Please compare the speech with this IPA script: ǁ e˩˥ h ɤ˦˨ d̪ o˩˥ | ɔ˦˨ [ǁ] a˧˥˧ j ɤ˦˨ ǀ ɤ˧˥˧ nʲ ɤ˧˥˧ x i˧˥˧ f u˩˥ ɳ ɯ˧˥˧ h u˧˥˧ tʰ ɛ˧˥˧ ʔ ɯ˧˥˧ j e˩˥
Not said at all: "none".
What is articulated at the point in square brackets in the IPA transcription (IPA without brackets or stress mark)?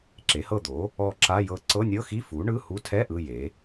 ǁ